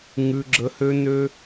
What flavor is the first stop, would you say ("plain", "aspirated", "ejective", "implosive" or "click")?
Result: click